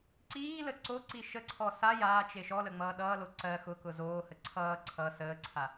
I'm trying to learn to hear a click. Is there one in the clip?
yes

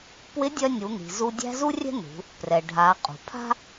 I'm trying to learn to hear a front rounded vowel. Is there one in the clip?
yes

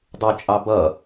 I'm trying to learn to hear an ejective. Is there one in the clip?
yes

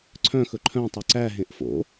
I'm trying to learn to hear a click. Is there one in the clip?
yes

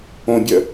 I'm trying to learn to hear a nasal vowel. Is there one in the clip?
yes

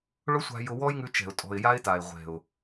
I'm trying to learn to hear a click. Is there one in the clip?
no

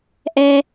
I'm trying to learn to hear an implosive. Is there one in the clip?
no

